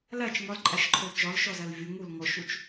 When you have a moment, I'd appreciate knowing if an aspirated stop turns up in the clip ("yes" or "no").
yes